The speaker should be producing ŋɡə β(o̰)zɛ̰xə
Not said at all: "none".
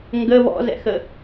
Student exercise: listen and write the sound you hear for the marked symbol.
ɔ̰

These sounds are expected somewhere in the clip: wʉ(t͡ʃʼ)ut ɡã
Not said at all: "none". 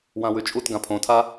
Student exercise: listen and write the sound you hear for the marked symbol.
t͡ʃʼ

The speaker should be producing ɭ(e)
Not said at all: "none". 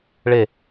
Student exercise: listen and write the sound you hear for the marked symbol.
e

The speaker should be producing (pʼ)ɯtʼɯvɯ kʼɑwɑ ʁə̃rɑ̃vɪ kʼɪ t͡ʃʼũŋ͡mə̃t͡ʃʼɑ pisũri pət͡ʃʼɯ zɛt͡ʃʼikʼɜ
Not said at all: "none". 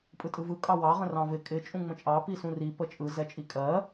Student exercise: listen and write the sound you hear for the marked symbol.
pʼ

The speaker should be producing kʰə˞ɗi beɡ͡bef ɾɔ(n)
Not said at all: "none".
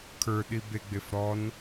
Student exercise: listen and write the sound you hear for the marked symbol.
n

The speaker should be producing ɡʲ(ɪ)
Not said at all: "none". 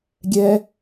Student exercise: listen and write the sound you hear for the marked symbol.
ɛ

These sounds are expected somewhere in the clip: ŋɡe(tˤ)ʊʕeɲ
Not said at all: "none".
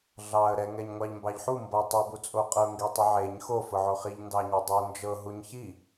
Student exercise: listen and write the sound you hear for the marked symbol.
tˤ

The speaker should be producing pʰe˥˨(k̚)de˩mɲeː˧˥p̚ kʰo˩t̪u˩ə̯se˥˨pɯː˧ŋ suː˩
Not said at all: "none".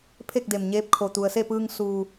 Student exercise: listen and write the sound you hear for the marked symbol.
k̚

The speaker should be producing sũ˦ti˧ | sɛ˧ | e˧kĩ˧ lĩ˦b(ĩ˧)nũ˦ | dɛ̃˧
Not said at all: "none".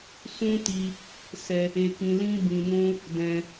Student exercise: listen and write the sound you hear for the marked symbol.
ĩ˧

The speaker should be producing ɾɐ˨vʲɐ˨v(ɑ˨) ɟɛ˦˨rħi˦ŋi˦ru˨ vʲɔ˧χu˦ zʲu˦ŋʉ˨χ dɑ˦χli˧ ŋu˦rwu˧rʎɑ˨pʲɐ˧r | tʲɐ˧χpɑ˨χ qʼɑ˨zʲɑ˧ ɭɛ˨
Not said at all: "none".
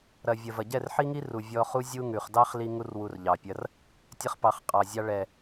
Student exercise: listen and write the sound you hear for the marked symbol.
ɐ˨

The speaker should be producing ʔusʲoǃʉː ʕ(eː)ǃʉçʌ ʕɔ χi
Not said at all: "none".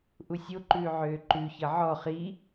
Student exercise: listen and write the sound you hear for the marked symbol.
øː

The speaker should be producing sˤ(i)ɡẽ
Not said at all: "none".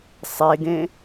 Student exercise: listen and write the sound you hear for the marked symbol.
e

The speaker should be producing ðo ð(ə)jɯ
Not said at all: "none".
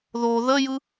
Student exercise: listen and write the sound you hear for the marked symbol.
ə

